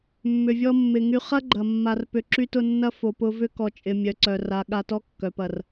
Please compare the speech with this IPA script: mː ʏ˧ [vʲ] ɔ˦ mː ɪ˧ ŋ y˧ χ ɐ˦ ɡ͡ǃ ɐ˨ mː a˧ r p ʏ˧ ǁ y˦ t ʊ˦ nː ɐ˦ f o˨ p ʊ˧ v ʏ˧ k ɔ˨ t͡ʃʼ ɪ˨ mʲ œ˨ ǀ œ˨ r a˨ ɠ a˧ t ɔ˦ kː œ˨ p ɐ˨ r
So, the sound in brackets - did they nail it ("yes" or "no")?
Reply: yes